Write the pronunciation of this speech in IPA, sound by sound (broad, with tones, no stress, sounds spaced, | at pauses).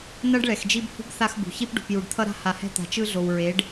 n ʌ˦ ɖ ɭ ɛ˨ x d͡ʒ i˦ b h ṳ˦ b θ a˦ x b ṳ˨ ç i˦ p ɖ ṳ˨ p j u˨ ɖ t̪ʰ ʌ˦ ɾ a̤˦ h a˨ h ɛ̤˦ t̪ a̤˨ t͡ʃ ɯ˦ ɮ o˨ w ɹ e˨˦ ɖ